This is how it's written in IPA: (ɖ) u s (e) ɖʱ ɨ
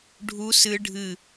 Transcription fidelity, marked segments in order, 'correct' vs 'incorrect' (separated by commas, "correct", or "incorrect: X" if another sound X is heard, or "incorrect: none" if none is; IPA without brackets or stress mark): incorrect: ɖʱ, incorrect: ɨ